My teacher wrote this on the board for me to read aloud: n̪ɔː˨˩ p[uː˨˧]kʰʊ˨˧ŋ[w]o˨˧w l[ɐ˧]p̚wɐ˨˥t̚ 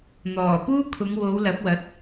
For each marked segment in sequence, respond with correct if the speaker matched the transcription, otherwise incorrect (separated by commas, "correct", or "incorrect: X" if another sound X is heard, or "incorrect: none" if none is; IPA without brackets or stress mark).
incorrect: uː˥, correct, incorrect: ɐ˨˥